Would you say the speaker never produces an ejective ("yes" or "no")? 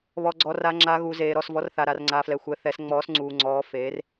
yes